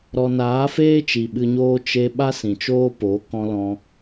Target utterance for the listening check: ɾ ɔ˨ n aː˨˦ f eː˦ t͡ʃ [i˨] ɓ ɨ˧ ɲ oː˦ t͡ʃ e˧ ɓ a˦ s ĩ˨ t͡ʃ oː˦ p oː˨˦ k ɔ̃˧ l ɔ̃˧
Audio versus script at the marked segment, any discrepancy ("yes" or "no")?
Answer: no